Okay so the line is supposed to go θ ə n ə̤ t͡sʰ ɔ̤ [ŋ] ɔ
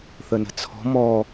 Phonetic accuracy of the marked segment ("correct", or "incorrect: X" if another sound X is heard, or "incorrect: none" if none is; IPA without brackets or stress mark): incorrect: m